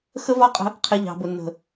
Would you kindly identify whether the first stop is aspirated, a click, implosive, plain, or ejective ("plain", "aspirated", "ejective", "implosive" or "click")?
ejective